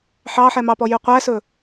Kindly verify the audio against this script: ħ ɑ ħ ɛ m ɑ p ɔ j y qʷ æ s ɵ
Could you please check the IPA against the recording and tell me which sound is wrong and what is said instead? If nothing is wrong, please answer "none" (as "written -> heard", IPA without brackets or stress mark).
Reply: none